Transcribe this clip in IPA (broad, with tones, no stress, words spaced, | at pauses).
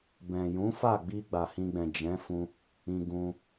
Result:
bɛ̃˨jũ˨˦fa˦˨ɡ͡bi˧ ɡ͡ba˨hĩ˧ɡ͡bɛ̃˨ d͡ʒɛ̃˨˦fũ˧ | ĩ˧ɡũ˧